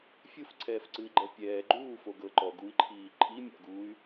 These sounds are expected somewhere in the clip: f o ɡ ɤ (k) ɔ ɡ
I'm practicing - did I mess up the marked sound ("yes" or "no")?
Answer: yes